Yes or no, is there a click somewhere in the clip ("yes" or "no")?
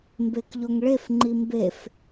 yes